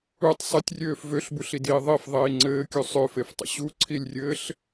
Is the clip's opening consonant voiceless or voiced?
voiceless